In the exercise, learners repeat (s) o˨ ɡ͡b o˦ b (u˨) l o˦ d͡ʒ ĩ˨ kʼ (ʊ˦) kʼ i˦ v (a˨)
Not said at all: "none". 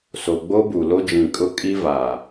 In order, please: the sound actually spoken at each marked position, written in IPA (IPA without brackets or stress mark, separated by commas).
s, u˨, ʊ˦, a˨